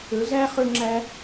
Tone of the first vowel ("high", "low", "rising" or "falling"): rising